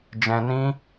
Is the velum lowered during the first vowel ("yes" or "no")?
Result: yes